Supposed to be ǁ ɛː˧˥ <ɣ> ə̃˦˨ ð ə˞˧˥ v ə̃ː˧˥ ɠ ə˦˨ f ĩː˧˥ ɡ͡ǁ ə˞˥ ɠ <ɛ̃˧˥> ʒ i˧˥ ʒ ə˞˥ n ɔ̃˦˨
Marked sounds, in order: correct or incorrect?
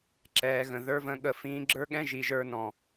correct, incorrect: ɛ̃˥

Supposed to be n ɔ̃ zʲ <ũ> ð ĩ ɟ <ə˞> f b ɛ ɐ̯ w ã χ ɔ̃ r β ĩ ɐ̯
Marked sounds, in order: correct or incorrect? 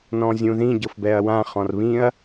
correct, incorrect: ɤ

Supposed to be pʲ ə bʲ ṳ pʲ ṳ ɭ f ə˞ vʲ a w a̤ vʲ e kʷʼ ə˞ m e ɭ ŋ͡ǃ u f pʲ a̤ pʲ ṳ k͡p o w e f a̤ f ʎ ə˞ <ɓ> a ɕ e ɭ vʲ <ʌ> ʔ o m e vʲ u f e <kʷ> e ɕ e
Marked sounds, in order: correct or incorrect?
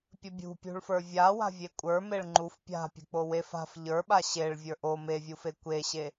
correct, incorrect: ə˞, correct

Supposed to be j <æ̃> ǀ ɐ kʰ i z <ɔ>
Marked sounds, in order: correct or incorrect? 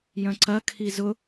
incorrect: œ̃, incorrect: ʊ

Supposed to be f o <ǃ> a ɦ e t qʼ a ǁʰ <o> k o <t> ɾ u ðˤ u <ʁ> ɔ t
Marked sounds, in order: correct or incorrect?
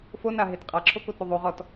incorrect: n, correct, correct, correct

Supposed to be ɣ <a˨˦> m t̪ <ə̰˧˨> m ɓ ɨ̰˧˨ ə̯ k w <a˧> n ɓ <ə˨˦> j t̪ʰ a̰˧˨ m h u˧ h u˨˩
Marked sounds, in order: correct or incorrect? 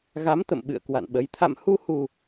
correct, correct, incorrect: a̰˧˨, correct

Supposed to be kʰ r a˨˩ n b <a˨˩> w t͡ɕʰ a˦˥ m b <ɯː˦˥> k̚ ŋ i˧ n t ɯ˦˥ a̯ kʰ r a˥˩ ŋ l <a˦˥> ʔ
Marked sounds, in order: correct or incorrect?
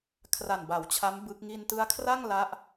correct, incorrect: ɯ˦˥, correct

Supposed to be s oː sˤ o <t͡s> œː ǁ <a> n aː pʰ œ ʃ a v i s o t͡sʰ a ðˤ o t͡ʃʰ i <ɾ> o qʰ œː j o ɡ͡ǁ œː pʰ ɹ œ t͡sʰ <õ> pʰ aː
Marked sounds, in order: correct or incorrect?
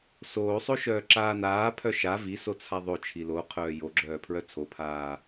incorrect: ʃ, incorrect: aː, incorrect: l, incorrect: o

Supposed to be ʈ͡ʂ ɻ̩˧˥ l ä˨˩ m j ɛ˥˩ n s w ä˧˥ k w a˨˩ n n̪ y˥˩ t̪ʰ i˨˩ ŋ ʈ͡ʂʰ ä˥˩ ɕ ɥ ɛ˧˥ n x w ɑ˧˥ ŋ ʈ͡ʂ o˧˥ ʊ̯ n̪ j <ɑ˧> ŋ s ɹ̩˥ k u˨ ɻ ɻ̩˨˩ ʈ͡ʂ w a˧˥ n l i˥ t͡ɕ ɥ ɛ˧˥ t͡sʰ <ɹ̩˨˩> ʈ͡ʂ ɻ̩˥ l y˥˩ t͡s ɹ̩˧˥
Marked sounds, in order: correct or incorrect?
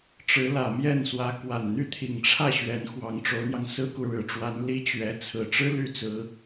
correct, correct

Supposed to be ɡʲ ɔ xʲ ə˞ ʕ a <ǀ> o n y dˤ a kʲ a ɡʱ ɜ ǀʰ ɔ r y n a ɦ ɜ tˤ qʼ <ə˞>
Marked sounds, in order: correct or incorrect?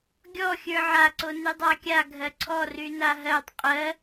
correct, incorrect: ɜ

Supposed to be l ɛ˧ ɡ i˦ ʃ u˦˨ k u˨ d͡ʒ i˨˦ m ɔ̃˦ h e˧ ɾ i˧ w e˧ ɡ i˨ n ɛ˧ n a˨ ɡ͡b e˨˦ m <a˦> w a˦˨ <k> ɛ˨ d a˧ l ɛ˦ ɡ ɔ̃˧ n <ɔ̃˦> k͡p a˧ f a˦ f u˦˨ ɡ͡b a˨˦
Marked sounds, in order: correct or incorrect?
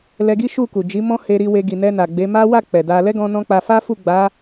correct, incorrect: k͡p, correct

